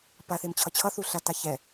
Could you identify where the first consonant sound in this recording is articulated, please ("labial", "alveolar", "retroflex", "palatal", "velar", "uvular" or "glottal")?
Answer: labial